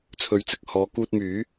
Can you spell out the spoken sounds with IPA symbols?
t͡sʰ ɵ˨˥ ɥ t͡s ɪ˨ k̚ h ɔː˨˧ k uː˧ t̚ m yː˨˥

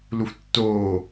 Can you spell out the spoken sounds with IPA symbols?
l u f tː oː

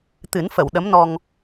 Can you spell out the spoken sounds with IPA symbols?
t̪ ɨ˨˩˦ n f ə˨˩˨ w ɗ ə˧˥ m n ɔ˧ ŋ

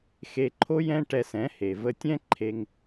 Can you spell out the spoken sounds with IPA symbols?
x e˧ ǃʰ o˦ j ɛ̃˦ ʈ ɛ˧ s ɛ̃˨˦ h e˨ v ə˧ tʲ ɛ̃˦ ǃʰ e˧ ŋ

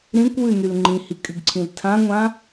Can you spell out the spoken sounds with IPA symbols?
ɾ ĩ kʷ w ʉ n y l ŋ͡ǃ ĩ h i kʼ y ɡ ǀʰ ĩ l tʰ ã ŋʷ ã

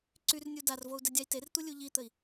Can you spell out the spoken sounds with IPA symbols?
ǀ y r nʲ u d a r v o u̯ d ɛ dʲ a i̯ t e r t̪ u lʲ u ʎ i t̪ ə i̯

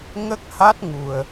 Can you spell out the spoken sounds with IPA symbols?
ŋ ə˦˥ k̚ h a˦˥ t̚ ŋ u˨˩ ə̯

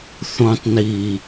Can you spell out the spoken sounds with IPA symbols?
θ õ tˤ n i

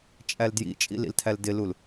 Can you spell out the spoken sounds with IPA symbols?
t͡ʃʼ æ l d j ḭ t͡ʃʼ ḭ l ḭ l tʰ æ l d ɪ l u l

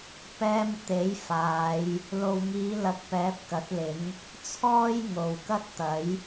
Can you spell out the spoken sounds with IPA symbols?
p ɛː˧ m t̪ e˨˥ j f aː˨˧ j | l o˨ w ŋ iː˨˧ l ɐ˨ k̚ p ɛː˨˥ p̚ k ɐ˨˥ t̚ l ɪ˨˥ ŋ | t͡sʰ ɔː˥ j ŋ o˨ w k ɐ˥ t̚ t̪ ɐ˨˥ j

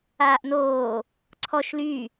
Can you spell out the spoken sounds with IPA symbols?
aː ʔ n oː | ǀʰ ɔ ʃ l y

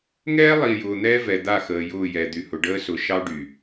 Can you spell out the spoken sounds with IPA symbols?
ŋ ɛː˦ lˠ i˨ j ʊː˨ n̪ ɛː˦ v ɛ˨ d̪ a˦˨ x əː˨ j ʊː˦˨ j ɛ˨ d̪ y˨ h ʊ˨ ɖ əː˦ s ʊ˨ ʃ ɑ˦ ɖ y˨

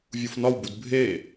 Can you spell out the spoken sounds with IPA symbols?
vʲ u f n ɒ w b u d bʱ e

